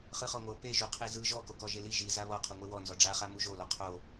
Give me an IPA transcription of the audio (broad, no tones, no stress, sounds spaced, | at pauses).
χ ɯ χ ɔ ŋʷ ɤ p e ʒ u qʰ i z ɯ ʒ ɔ k o k ɔ ʒ e l i ʒ i z a β ɔ qʰ u ŋʷ e w ɔ n z ɔ ɖ͡ʐ a χ a m u ʒ o l ɔ qʰ o